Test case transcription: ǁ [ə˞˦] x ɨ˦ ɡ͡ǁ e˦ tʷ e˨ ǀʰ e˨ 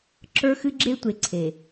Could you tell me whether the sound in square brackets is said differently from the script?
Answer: no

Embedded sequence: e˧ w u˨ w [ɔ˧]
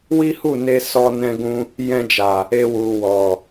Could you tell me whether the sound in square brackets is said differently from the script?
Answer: yes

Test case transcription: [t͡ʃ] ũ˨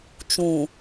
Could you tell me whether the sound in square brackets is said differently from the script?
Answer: no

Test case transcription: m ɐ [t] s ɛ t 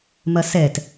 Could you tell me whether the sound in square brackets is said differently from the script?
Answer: yes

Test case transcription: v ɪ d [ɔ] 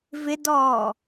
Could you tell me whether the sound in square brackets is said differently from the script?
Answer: yes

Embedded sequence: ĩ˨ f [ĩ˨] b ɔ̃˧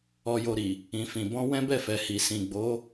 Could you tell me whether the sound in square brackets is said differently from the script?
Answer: no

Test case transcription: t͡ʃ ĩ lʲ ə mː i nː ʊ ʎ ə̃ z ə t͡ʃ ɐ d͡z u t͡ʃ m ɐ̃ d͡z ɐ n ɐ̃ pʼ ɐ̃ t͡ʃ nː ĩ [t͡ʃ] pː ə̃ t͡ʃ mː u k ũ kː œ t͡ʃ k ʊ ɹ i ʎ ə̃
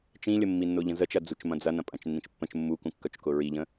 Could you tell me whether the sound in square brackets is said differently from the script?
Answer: no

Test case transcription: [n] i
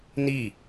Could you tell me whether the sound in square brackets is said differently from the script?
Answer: no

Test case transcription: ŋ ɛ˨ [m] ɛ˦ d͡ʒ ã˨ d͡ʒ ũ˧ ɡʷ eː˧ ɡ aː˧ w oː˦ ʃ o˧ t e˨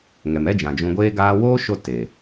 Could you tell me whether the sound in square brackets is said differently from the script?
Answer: no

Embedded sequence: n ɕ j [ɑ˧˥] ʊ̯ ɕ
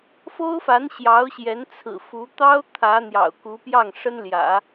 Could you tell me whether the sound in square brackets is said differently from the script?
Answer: no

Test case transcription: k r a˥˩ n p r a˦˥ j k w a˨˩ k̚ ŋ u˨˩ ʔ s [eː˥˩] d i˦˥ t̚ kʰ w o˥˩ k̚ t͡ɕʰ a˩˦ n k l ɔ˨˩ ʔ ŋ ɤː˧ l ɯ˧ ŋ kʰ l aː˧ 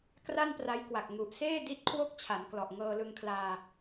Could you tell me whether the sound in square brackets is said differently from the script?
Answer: no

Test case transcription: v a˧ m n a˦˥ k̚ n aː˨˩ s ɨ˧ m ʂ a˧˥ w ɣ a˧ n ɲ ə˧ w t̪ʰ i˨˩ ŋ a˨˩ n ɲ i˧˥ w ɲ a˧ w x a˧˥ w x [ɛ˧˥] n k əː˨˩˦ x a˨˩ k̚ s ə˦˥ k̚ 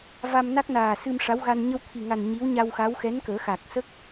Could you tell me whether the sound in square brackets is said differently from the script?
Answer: no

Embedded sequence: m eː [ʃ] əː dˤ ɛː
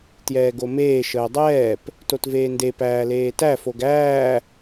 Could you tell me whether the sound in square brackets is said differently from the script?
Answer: no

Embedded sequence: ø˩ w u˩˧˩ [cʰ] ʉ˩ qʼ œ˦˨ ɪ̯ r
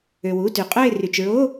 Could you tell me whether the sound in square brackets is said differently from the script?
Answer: yes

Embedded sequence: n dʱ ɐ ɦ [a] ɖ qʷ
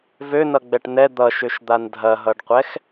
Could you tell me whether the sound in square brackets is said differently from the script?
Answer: yes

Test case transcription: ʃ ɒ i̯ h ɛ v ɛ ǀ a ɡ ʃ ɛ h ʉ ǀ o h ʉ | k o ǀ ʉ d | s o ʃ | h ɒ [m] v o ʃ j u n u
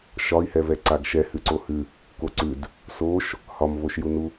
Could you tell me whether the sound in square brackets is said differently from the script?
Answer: no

